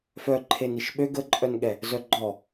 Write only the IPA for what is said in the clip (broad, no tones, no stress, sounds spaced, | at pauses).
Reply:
f œ ǃʰ e n i ʃ ɓ ø ɡ ə ǃʼ œ n ɠ ɛ | z œ ɡ͡ǃ ɔ